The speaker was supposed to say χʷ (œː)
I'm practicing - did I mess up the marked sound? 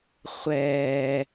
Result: yes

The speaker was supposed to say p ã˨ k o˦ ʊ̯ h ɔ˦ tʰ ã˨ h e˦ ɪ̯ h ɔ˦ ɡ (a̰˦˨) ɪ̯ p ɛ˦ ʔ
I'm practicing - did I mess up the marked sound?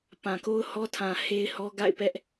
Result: no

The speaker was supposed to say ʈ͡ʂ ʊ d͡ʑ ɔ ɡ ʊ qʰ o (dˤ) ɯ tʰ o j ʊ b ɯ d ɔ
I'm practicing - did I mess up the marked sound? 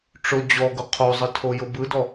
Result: yes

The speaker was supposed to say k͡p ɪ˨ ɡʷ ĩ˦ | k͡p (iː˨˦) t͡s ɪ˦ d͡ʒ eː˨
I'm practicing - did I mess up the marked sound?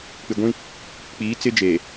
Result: no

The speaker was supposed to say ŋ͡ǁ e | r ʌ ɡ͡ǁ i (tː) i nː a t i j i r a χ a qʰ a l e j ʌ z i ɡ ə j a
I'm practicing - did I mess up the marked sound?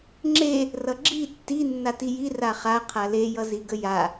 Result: no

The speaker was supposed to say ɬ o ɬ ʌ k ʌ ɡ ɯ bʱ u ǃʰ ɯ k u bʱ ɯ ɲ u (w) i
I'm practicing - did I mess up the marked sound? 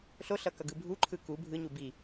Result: yes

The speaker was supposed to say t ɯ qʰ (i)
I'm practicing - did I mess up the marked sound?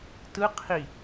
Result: no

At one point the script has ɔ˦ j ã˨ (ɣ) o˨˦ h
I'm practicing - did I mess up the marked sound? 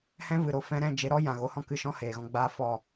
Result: no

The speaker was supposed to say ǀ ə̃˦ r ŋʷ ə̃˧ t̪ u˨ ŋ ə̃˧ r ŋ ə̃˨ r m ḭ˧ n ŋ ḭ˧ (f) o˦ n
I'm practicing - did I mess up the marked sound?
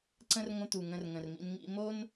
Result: yes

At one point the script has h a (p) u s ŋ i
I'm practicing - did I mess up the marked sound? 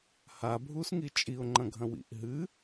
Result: yes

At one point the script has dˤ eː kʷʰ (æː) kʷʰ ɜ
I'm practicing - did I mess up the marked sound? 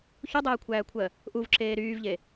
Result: no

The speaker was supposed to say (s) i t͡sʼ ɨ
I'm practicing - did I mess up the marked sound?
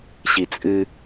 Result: yes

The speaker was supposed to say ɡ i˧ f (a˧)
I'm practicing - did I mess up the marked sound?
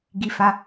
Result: no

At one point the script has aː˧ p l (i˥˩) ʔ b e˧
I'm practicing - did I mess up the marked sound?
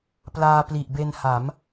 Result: yes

